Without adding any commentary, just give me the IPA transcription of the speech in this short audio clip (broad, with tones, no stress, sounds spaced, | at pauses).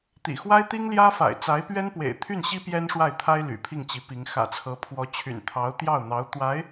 t̪ ḭ˨˩ x w a˥ ɪ̯ t̪ i˥ ŋ l j ä˥ f a̰˨˩ ɪ̯ t͡s a˧˥ ɪ̯ p ɥ ɛ˥ n p w ḛ˨˩ ɪ̯ t̪ʰ y˥˩ n ɕ i˥ p j ɛ˥ n ʂ w a˥˩ ɪ̯ t̪ʰ a˥ ɪ̯ l y̰˨˩ pʰ i˥˩ ŋ t͡ɕ i˧˥ p i˧˥ ŋ x ä̰˨˩ t͡sʰ ɤ˧˥ pʰ w ɔ˧˥ t͡ɕʰ y̰˨˩ n t̪ʰ ɑ˧˥ ʊ̯ t̪ j ɑ˥˩ ʊ̯ n̪ ɑ˧˥ ʊ̯ t̪ w a˧˥ ɪ̯